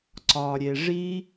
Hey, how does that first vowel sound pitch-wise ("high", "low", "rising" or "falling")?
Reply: low